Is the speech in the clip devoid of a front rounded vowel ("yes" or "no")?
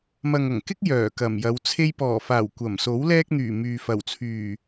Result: no